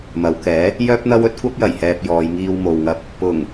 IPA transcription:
m ɐ˨˧ w k ɛː˨˥ | j œː˥ p̚ n̪ ɐ˥ w ɵ˥ t̚ kʷ ɐ˥ p̚ j ɐ˨˩ j h ɛː˧ p̚ j ɔː˨˧ j ŋ iː˧ w m o˨ w ŋ ɐ˧ p̚ | p ʊ˨˩ ŋ

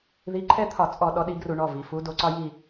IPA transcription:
ð i˨˦ ǃʰ ɛ˦ t̪ʰ ɒ˧˩˧ t͡sʼ ɔ˧˩˧ ɗ ɔ˨˦ ɗ i˨˦ ɡ r u˧˩˧ ɳ ɔ˩˧˩ v i˩ f u˨˦ d o˨˦ ǀ ɒ˦ j i˦˨

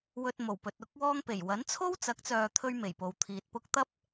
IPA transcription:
w ɵ˧ t̚ m o˨˩ w p ɵ˨ t̚ ʊ˥ k̚ w ɔː˥ ŋ p e˨˩ j w ɐ˨˥ n t͡sʰ o˥ w t͡s ɐ˨˥ k̚ t͡s œː˨ t̪ʰ ɵ˥ ɥ m e˨˩ j p o˨ w t̪ʰ iː˨ t̚ p ʊ˥ k̚ t̪ ɐ˥ p̚

